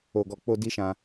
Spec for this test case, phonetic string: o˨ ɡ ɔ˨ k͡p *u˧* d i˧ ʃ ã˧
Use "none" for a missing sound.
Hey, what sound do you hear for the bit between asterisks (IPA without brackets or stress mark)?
o˧